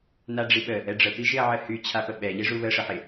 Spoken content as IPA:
naɖ͡ʐiɓə | ɛɖ͡ʐə piʒɪɐ̯ʕəhy t͡ɕʰapəɓɛ ʎeʐuβə ʂəħɪ

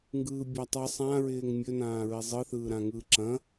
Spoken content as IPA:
ŋɡɯːbʲatˤɯ sˤãɹɪːŋ mʲɵnãː ɹizˤɯθɯː ɾãŋɯːǁɐ̃

